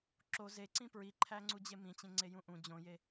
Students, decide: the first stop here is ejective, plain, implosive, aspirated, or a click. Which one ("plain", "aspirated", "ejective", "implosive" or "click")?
click